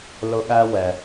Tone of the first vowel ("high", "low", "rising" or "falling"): high